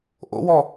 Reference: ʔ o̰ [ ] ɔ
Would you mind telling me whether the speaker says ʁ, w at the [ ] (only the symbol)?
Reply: w